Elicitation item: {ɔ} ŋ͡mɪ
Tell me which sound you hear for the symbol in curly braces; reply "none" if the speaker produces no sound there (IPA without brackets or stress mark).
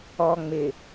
ɔ